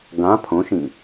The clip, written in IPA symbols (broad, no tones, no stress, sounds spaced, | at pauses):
ɡ ã pʰ õ ʃ ĩ